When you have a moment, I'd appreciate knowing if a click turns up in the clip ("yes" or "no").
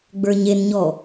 no